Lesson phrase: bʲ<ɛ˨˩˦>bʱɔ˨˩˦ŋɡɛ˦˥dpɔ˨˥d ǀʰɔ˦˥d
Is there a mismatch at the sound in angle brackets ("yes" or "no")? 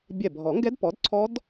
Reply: yes